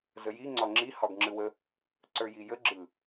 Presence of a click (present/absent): present